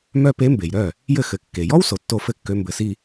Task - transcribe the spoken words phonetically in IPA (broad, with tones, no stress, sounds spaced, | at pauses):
m œ˥ p e˧˥ m b e˩ j ɾ œ˥˩ | j ɘ˥˩ x ɘ˩˧˩ kː e˩ j ɔ˥ w s o˩ tː o˥˧ f ɘ˥˧ kː ø˧˥ m b ɘ˩˧˩ s i˥˧